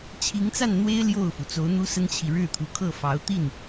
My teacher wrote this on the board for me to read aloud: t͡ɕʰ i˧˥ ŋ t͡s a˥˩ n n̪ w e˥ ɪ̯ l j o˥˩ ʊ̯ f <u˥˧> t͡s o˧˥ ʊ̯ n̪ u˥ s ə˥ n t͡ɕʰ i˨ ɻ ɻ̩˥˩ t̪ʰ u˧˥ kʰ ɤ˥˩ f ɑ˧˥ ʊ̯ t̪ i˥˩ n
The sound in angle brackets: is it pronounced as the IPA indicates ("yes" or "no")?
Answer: no